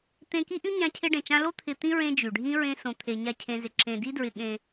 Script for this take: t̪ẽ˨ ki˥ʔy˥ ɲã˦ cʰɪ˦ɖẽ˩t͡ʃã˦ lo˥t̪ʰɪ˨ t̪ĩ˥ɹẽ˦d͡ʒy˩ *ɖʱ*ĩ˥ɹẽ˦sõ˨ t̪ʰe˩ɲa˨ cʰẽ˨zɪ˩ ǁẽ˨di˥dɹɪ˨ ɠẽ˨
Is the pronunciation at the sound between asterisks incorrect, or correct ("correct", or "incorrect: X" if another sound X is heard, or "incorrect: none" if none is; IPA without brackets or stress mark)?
correct